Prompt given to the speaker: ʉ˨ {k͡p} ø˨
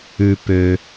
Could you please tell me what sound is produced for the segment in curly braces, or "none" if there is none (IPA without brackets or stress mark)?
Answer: p